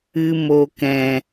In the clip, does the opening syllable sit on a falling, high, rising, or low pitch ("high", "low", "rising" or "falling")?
low